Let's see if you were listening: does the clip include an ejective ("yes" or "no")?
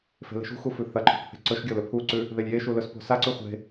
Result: no